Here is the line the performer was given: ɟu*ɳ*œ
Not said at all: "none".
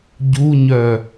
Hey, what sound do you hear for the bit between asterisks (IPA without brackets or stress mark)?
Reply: ɲ